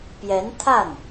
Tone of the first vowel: rising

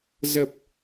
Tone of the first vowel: low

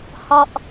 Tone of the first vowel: low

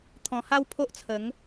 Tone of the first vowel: low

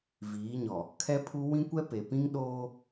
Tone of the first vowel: rising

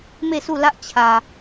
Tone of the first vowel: falling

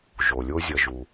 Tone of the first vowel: low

